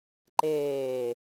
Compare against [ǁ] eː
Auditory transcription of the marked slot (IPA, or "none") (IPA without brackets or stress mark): ǃ